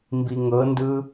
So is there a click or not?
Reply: no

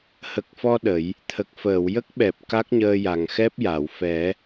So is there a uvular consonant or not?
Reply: no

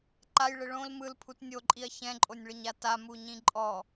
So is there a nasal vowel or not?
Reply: yes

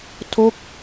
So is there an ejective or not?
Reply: no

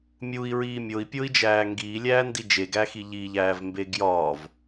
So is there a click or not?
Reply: no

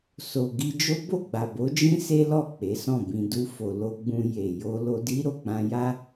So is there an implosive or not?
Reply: no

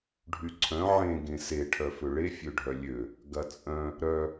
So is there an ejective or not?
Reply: yes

